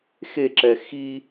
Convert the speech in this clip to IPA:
xeǁɛ xi

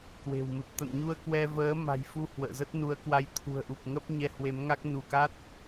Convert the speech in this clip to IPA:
kwe̤˨˩wmɨ˨˩p̚ t̪ə̰˧˨nɲu˧ə̯kwɛ˧vəː˨˦ ma̤˨˩jfu˧ hwə̰ː˧˨zə˦˥t̚nu˨˦ə̯kwa˧j t̪ʰṳ˨˩ə̯ʔu˨˩p̚ŋə˦˥p̚ ɲɛ˧hwe˨˦mŋa˦˥k̚ nu˧˩ka˦˥t̚

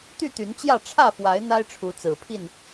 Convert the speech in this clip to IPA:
t̪y˥˨t̪y˨˦nt͡ɕjä˥˨ ʈ͡ʂʰä˥˨fwa˨˦ɪ̯ n̪a˦ɪ̯ʈ͡ʂʰu˨˦t͡sɹ̩˨˩pʰi˥˨n

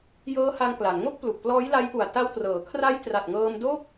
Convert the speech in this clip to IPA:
jɤː˦˥ha˧ŋkla˩˦nŋo˥˩k̚ plu˨˩k̚plɔː˦˥jla˦˥jʔu˨˩a̯ ta˧wtrɤː˩˦kʰra˦˥j tra˨˩t̚ŋɤː˧m doː˥˩k̚

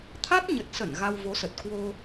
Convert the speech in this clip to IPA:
t̪ʰa˦˥t̚ɲə˨˩t̚sə˧˩n ɣa˧wvo˨˦sə˨˩t̚ kwo˧

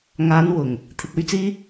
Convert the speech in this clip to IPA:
ŋaː˨˧nwʊ˨˩ŋ | t̪ʰɪ˨k̚ɵ˥ɥt͡siː˥

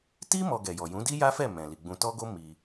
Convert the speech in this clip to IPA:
ti˦ mɔ˧ɡɛ˨jɔ˨ jũ˨˦di˦ja˦fɛ˦˨ mɛ̃˨ li˨ɡ͡bũ˧ tɔ˦ɡo˦ mi˧

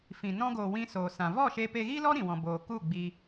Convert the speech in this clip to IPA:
fĩ˨ nɔ̃˧ɡoː˨ wĩ˧soː˨sã˨ vɔ˦˨ ʃe˧pe˧ɣiː˦lɔ˦ ɾĩ˨wɔ̃˨ boː˨ku˦˨ ɡ͡bi˧

